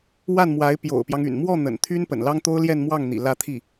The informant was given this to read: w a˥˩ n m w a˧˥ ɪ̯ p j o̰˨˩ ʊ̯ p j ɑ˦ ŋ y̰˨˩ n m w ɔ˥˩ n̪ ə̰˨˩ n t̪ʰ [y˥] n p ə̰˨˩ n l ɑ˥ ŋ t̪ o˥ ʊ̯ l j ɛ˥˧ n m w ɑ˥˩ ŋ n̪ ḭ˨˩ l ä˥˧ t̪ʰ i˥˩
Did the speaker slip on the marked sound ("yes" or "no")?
no